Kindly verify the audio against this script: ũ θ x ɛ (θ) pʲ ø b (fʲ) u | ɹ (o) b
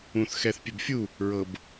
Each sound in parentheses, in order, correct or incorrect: correct, correct, incorrect: ɤ

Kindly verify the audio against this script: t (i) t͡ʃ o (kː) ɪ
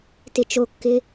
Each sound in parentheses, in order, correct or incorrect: incorrect: ɪ, correct

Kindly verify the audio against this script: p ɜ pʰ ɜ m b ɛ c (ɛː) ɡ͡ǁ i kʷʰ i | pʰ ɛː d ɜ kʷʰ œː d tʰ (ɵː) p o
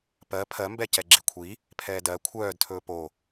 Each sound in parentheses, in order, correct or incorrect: incorrect: ɛ, correct

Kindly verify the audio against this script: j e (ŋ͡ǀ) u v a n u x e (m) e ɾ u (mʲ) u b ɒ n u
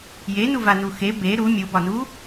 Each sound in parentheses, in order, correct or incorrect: incorrect: n, incorrect: b, correct

